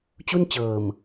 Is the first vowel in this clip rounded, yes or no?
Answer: yes